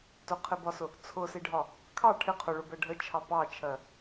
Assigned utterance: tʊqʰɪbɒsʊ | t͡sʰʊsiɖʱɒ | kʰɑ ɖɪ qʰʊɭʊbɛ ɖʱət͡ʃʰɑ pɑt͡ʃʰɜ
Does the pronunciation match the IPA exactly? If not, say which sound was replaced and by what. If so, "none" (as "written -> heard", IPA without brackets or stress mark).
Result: ɖ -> ʈʰ